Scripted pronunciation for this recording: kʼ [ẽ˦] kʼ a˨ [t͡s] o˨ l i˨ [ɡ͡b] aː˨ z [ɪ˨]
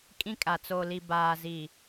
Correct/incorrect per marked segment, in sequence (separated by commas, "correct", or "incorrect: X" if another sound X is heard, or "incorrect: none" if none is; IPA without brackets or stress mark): incorrect: ĩ˦, correct, incorrect: b, incorrect: i˨